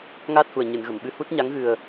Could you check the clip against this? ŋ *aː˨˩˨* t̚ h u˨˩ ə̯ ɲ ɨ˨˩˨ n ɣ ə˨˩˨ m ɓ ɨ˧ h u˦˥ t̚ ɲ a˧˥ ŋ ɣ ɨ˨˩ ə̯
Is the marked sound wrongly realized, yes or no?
yes